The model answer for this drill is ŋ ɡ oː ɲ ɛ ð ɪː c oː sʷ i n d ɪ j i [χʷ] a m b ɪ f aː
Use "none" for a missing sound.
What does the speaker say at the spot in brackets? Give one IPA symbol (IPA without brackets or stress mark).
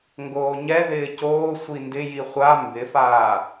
χʷ